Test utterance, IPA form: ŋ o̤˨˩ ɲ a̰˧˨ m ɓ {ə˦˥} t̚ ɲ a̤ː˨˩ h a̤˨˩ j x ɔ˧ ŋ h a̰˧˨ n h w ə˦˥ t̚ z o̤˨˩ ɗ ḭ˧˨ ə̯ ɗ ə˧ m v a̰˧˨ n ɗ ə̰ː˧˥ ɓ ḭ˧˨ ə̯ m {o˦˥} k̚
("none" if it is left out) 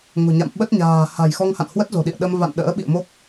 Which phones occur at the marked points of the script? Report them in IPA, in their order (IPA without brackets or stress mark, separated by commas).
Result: ə˦˥, o˦˥